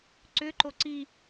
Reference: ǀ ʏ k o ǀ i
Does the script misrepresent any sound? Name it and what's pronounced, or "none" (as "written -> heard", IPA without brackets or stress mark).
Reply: k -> ǃ